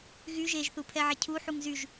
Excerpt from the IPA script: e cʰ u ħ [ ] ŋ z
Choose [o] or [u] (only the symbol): u